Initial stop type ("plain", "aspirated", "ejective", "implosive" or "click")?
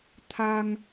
aspirated